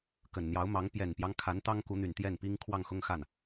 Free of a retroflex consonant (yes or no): yes